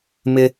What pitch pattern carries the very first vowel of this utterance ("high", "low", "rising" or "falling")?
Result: high